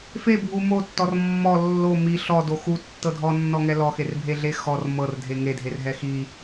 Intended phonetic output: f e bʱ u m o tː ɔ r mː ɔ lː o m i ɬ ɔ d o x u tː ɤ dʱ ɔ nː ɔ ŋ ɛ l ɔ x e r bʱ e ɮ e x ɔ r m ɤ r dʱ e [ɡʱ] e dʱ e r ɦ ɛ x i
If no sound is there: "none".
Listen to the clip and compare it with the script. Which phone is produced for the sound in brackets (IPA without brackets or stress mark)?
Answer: ŋ